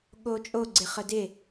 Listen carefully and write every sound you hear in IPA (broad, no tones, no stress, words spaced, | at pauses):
ɠot͡ʃʼo ɡ͡ǀɪχədɪ